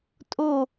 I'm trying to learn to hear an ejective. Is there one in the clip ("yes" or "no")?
yes